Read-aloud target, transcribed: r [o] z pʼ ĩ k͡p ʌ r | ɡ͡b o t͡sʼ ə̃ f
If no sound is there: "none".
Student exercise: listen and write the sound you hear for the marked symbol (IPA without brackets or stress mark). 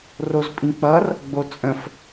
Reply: o